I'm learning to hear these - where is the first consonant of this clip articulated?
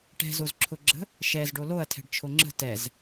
retroflex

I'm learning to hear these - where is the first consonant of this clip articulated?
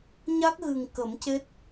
palate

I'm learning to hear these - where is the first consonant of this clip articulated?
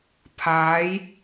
lips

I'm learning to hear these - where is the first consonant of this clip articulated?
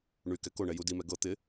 retroflex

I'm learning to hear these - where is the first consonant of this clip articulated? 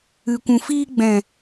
velum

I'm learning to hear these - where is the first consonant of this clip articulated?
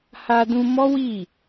throat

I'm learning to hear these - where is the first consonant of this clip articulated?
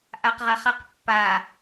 throat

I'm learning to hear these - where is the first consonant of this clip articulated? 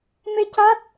lips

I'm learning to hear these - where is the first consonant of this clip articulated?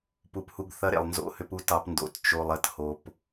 lips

